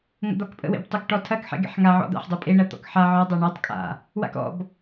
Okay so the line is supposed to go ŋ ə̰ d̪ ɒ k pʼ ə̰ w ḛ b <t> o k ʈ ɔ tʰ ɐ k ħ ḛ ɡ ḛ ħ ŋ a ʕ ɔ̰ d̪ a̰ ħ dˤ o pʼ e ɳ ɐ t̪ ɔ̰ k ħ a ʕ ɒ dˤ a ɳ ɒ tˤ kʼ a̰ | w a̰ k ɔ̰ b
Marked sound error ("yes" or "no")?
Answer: yes